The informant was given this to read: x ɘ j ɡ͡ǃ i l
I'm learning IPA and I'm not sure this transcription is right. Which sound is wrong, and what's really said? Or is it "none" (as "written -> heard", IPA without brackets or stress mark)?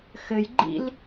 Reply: i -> ḭ